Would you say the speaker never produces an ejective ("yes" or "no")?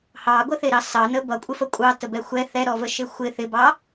no